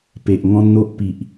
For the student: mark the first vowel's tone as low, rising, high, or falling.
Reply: low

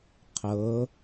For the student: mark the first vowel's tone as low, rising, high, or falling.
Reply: rising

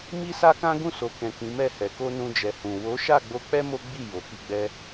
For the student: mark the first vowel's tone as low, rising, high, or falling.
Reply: high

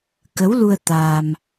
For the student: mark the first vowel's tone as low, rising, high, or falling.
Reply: rising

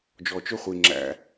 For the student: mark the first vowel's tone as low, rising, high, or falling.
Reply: low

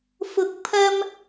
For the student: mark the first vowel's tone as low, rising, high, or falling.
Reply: rising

